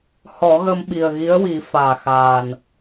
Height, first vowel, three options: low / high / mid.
mid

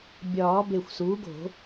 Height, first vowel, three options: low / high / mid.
low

